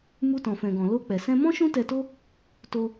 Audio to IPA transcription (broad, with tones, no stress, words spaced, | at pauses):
mu˧tɔ̃˨fɛ̃˨ɡɔ̃˨ lo˧k͡pɛ˨ sɛ̃˧mɔ̃˦ ʃũ˦tɛ˧to˦ | to˧